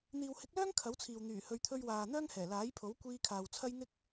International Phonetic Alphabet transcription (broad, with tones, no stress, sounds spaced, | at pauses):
n̪ iː˨ w h ɪ˨˥ k̚ l œː˥ ŋ kʰ ɐ˨˥ w t͡sʰ iː˨ w n̪ yː˨˩ h ɵ˨˧ ɥ t̪ʰ ɵ˧ ɥ w aː˨ n̪ œː˥ ŋ h ɛː˨˩ l aː˨˥ j pʰ o˨˥ w kʷ iː˧ kʰ aː˨ w t͡sʰ ɐ˥ j n̪ ɪ˥ k̚